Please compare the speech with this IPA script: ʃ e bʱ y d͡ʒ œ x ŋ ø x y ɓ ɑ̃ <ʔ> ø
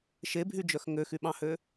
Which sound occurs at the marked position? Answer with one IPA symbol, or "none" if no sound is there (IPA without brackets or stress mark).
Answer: h